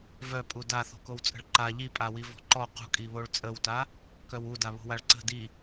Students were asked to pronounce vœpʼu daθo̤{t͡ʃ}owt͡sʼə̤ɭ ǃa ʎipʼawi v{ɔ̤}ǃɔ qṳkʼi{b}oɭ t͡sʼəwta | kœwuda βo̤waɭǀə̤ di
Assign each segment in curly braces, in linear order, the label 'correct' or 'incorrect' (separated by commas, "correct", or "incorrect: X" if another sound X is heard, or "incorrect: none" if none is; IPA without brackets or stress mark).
incorrect: k, correct, incorrect: β